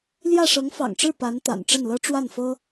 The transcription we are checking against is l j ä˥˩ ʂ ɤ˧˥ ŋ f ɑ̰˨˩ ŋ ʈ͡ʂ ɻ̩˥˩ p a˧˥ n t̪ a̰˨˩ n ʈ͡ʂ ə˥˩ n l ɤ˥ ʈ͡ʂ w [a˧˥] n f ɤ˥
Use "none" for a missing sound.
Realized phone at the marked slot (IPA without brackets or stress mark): a˥˩